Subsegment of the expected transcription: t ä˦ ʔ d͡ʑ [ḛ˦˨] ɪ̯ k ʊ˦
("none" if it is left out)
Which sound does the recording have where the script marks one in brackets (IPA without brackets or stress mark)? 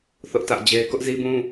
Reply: e˦